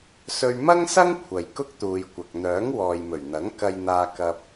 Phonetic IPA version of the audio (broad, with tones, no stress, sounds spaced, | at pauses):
s ɵ˧ ɥ m ɐ˥ ŋ s ɐ˥ ŋ kʷʰ ɐ˨ j k ʊ˥ k̚ t̪ uː˨ j kʷ ɐ˨ k̚ n̪ œː˨˥ ŋ w ɔː˨ j m ɵ˨˩ ɥ n̪ ɐ˨˥ ŋ k ɐ˧ j n̪ aː˧ k ɐ˧ p̚